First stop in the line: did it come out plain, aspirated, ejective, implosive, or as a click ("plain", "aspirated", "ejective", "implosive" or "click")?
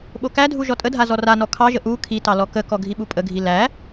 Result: implosive